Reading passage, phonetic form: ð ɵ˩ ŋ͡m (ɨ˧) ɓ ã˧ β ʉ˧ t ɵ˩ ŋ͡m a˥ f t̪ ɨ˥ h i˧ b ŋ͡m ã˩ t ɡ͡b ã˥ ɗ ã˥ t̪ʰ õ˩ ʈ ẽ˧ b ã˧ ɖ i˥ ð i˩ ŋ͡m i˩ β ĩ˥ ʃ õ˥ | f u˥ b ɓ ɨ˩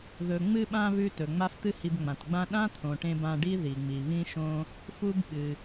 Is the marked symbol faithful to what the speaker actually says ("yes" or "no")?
yes